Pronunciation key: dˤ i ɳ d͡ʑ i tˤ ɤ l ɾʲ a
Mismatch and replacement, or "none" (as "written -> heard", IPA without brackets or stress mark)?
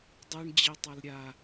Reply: none